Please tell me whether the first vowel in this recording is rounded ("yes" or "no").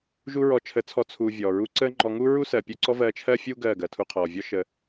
yes